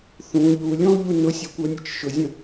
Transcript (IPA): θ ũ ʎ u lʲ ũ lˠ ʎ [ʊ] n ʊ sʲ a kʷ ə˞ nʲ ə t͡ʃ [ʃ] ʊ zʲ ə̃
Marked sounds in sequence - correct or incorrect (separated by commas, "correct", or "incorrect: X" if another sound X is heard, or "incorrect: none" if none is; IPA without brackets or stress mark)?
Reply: incorrect: u, correct